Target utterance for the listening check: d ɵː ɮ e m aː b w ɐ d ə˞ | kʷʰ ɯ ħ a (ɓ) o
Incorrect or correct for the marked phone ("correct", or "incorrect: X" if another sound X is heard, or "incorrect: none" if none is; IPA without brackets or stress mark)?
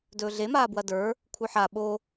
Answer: correct